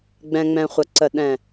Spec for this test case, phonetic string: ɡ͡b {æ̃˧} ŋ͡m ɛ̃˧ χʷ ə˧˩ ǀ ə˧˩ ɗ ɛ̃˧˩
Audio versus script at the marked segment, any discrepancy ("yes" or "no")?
yes